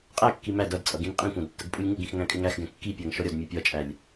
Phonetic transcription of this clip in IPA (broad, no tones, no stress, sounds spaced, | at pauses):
qʼ æ kː i m æ d ʌ d t͡sʼ ʌ ɡ ĩ n qʼ ĩ kʷ ɑ̃ d tː ə ɡ pʼ u lʲ ŋ u ɡ ĩ x ŋ æ̃ kʼ ɪ ŋ æ x ɡ ɛ̃ kː i pʲ æ ŋ ʃ ɔ ɾʲ ɒ d mʲ ɜ pʲ ɒ t͡ʃʼ æ lʲ